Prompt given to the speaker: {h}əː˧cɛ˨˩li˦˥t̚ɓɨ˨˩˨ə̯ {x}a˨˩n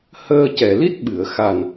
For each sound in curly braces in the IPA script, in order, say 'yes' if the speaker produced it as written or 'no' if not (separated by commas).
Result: yes, yes